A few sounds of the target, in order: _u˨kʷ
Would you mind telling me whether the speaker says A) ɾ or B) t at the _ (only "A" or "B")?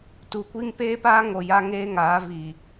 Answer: B